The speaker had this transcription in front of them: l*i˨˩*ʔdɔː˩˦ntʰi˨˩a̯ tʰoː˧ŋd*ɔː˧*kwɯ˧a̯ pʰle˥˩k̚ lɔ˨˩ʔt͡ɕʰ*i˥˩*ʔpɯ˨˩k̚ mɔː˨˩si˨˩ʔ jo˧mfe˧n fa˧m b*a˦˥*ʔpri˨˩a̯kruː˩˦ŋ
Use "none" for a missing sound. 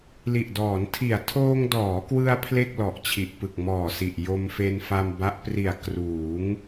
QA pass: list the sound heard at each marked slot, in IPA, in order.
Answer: i˨˩, ɔː˩˦, i˨˩, a˦˥

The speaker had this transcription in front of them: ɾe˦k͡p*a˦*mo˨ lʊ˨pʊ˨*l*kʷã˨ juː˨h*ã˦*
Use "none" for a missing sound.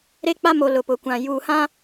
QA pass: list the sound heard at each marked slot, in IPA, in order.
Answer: a˦, none, ã˦

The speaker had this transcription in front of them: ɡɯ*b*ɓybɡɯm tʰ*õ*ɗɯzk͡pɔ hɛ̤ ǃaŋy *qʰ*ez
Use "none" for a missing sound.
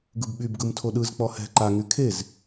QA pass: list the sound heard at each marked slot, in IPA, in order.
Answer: b, o, kʰ

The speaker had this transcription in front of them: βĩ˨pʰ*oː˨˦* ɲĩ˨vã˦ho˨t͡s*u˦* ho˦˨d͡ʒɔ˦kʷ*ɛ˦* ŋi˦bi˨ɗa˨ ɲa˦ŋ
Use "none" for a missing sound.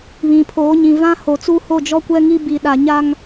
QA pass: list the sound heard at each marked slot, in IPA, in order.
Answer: oː˨˦, u˦, ɛ˦

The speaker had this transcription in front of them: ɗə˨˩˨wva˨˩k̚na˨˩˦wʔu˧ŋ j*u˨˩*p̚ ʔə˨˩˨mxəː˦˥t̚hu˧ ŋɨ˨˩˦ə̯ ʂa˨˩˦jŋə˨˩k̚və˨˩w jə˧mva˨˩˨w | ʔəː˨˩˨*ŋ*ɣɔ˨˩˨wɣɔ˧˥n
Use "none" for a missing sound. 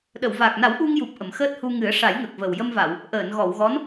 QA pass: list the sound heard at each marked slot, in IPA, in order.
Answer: u˨˩, n

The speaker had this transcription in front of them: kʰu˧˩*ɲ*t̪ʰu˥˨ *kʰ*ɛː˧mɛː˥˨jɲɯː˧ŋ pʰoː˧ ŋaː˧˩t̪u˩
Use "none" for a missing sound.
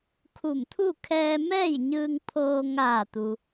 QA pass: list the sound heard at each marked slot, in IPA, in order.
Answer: m, kʰ

